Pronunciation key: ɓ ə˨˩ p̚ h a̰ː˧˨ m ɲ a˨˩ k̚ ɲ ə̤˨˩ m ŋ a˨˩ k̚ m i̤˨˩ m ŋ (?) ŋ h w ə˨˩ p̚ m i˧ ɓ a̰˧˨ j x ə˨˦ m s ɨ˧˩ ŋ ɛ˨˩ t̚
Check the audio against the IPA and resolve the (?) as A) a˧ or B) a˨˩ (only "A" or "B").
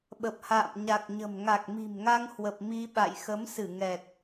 A